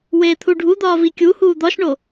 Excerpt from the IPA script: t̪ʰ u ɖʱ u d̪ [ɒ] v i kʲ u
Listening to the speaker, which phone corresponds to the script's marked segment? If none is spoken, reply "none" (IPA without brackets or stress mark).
ɒː